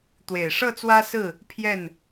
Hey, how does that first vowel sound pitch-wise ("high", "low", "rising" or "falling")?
low